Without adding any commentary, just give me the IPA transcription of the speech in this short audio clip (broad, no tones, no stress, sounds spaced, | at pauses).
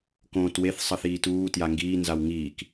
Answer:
k õː t w e θ sˤ ʌ θ iː t uː t j a ŋ ɡ iː n z a w ŋ iː k